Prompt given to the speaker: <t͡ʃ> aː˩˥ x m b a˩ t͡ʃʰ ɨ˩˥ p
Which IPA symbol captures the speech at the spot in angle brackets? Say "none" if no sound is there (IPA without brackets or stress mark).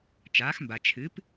t͡ʃ